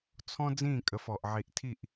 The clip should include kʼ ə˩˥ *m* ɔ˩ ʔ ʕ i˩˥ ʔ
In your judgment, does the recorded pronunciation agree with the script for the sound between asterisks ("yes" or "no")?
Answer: no